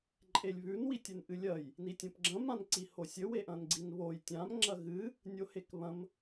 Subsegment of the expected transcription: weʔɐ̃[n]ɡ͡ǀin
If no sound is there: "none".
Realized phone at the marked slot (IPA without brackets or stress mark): n